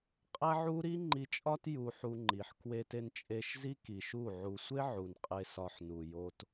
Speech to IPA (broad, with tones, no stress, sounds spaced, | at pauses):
qʼ æ˦ ʕ u˦ ɾ i˦ ŋ͡ǃ i˧ t͡ʃʼ ɒ˦ t j u˧ ħ u˧ ŋ͡ǃ i˨ ħ k w e˧ t e˧ n t͡ʃʼ e˧ ʃ z i˦ k i˨ ʃ u˦˨ ʕ u˧ sʷ e˦ ʕ u˨ n qʼ e˧ s ɒ˧ ħ n u˨ j o˧ t